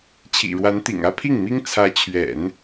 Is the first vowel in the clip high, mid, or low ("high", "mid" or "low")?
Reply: high